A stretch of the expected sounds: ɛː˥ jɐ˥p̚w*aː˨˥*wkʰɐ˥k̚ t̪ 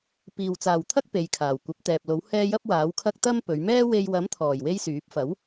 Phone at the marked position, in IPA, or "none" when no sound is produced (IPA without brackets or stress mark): aː˨˥